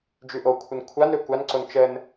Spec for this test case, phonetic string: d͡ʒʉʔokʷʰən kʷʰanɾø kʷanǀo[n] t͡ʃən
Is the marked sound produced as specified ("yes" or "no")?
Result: yes